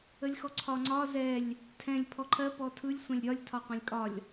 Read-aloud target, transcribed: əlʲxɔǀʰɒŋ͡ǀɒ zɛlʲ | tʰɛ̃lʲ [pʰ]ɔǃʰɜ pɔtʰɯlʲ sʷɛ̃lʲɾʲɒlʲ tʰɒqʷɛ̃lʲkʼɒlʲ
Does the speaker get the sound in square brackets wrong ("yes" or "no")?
no